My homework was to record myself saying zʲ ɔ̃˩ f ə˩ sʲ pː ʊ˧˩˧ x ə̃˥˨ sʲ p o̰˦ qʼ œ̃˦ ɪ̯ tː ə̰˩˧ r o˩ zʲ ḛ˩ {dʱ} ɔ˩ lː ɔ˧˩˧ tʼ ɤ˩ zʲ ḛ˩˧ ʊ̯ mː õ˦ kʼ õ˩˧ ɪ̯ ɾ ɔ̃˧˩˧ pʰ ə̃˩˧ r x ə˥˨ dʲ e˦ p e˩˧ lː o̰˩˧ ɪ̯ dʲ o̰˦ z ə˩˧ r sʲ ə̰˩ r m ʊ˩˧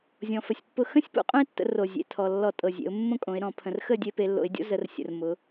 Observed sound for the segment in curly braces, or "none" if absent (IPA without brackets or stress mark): tʰ